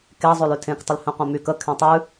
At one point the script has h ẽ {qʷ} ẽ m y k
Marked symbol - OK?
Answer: yes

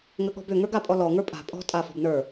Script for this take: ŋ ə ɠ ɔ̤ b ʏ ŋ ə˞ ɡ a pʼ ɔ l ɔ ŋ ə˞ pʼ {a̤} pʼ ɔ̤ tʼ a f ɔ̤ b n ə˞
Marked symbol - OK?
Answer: yes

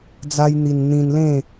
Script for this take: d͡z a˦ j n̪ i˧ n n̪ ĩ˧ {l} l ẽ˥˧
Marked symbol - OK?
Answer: no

